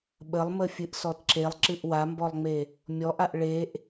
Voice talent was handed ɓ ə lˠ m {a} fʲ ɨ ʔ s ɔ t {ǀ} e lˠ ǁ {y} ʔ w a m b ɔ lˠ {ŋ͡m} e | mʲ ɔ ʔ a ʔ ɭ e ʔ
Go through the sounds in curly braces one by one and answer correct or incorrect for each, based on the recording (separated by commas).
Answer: incorrect, incorrect, incorrect, correct